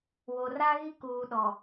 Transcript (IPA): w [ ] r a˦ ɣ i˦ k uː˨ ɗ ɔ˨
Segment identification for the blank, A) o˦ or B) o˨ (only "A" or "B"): B